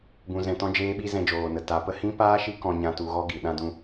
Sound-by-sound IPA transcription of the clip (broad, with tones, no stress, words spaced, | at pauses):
bũ˧zɛ̃˧tɔ̃˦ d͡ʒeː˦ɓi˦ zɛ̃˧d͡ʒoː˨nə˨ ta˨˦pə˧ hĩ˦paː˦ ʃi˦ kɔ̃˧ɲã˧ tu˧ɣɔ˦ɡi˨ ɗã˧dũ˧